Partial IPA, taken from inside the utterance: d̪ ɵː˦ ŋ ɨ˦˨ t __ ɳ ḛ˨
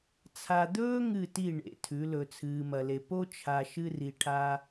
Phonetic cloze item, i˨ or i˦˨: i˦˨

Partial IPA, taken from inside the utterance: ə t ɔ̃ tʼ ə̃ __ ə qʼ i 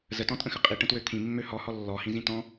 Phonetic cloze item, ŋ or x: x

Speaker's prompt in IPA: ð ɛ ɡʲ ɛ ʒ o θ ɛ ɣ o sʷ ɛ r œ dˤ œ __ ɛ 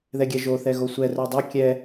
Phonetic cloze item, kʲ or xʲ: kʲ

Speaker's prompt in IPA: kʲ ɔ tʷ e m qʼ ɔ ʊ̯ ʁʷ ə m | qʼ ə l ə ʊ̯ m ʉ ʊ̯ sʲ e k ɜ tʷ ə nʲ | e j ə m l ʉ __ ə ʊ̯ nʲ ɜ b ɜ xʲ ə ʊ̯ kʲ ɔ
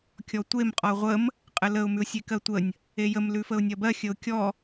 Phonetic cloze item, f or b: f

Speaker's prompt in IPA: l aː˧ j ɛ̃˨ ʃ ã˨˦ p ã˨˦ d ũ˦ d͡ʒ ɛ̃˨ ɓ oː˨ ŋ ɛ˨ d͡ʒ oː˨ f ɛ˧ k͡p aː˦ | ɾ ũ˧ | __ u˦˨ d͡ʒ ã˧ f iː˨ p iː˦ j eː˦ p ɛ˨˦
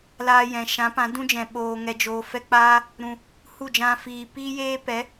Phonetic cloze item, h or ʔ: h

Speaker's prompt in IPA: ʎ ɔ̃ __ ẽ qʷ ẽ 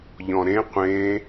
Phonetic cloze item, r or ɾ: ɾ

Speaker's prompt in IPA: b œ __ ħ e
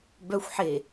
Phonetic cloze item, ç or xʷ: xʷ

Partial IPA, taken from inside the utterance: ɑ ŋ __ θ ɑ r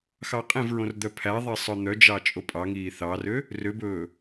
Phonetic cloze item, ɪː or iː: iː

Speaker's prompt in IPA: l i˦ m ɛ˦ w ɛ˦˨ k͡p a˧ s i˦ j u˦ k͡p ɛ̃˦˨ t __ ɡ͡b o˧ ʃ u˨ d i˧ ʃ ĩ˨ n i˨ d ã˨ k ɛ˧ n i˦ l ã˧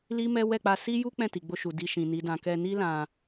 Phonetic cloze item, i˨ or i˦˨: i˨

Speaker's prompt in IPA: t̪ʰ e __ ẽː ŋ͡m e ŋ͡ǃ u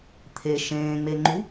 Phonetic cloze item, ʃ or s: ʃ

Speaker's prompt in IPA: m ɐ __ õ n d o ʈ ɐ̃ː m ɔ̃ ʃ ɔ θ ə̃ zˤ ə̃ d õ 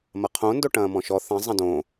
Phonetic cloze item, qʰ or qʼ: qʰ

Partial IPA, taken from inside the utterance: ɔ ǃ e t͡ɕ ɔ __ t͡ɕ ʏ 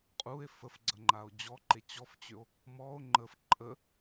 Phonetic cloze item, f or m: f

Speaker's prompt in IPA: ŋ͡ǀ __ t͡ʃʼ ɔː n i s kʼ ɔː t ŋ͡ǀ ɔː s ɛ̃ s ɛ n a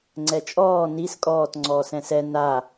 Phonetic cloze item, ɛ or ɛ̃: ɛ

